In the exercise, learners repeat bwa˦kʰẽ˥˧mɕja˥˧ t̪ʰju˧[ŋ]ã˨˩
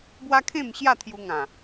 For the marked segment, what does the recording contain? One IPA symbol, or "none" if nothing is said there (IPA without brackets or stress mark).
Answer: ŋ